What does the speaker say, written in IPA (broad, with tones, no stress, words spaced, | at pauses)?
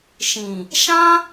ʃĩ˨ | ʃã˦